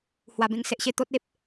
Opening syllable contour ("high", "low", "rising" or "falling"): low